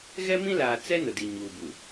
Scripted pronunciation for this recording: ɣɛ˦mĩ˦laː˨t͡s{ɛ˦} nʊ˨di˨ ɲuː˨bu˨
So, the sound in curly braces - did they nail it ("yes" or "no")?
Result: yes